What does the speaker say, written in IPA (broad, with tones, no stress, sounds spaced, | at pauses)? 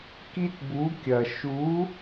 k i˥ t b u˧˥ kʲ ɐ˧ ʃ u˧˥